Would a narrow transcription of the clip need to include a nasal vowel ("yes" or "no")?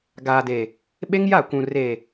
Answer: yes